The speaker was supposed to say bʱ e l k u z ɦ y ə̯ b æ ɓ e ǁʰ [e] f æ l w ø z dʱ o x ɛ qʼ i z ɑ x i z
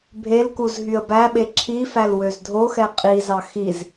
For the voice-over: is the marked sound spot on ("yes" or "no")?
no